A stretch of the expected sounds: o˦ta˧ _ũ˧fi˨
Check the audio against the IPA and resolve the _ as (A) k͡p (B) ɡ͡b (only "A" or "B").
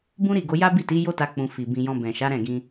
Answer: A